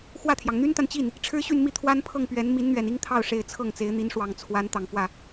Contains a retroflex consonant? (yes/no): yes